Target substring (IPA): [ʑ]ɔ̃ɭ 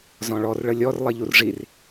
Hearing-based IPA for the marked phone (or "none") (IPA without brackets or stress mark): z